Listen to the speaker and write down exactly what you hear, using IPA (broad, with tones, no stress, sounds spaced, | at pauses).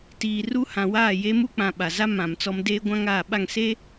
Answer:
t iː˨ r u˦ h ã˨ w aː˦˨ j e˦ m u˦ k͡p ã˨ ɓ a˨ z a˦ m ã˨ m t͡s ɔ˦ m d eː˦ ɡʷ ã˦ ŋ aː˦˨ ɓ a˦˨ ŋ s eː˦